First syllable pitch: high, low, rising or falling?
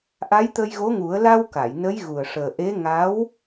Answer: rising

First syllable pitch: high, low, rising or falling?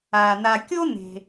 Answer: low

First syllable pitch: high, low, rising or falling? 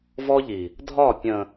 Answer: high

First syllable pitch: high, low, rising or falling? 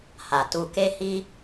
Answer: low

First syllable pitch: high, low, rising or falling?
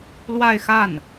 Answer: falling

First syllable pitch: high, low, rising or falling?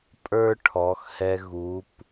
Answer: high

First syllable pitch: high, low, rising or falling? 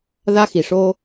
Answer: high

